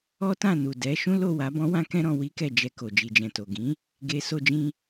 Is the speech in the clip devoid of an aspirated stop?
yes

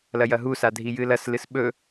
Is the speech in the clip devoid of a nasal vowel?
yes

